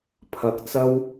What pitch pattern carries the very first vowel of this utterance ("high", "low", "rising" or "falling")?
rising